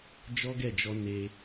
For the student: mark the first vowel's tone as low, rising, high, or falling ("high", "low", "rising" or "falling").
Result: high